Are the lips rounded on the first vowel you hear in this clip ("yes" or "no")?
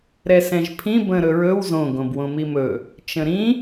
no